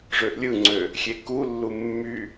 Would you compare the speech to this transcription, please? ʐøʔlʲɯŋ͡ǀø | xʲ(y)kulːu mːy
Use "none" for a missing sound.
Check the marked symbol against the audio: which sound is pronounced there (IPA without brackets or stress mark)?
e